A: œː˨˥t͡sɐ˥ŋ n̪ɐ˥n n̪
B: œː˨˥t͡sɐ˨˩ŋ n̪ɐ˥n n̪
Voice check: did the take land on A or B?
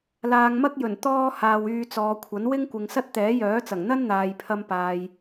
B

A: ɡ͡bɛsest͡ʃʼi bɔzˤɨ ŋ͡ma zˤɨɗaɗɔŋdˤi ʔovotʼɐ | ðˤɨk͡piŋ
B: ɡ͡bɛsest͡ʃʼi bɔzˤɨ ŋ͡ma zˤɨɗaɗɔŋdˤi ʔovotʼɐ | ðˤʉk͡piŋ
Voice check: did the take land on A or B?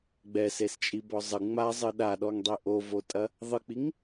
A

